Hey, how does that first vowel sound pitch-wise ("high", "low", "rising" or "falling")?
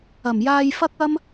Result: low